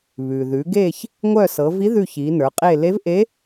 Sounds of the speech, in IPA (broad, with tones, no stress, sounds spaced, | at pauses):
β ʉ˩ ð ʉ˩˧ ɡ e˦˨ ç | ŋʷ œ˦˨ s ɤ˩˧ v i˧˥ ð ʉ˦˨ ç i˩˧ n ə˞˩˧ qʼ e˦˨ l e˧˥ v ʔ e˧˥